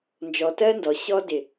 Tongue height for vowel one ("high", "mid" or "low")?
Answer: mid